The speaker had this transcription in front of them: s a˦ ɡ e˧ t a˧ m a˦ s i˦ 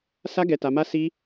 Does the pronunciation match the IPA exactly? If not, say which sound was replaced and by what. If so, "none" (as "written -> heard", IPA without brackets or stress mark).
e˧ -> ɛ˧